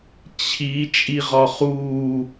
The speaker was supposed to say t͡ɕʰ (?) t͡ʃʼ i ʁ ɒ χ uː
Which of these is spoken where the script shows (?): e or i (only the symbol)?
i